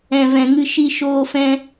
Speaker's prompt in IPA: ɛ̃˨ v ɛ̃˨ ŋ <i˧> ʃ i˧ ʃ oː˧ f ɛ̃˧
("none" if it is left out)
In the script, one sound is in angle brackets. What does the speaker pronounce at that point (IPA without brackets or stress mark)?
ɨ˧